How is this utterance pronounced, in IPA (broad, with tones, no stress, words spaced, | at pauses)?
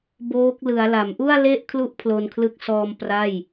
boː˦˥k̚ lɯ˩˦a̯la˩˦m ʔu˥˩a̯le˥˩ʔkʰlu˦˥ʔ pʰlo˧nkʰlɯ˦˥k̚ sɔː˧m pra˥˩j